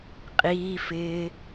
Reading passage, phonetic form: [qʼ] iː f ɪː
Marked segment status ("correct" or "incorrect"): correct